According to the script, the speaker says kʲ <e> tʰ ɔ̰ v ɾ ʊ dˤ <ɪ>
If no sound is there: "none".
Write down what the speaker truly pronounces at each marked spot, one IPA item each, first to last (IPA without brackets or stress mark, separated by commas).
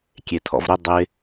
e, ɪ